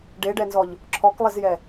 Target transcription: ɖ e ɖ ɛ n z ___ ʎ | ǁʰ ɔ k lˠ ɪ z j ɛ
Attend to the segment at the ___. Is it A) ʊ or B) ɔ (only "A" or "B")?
B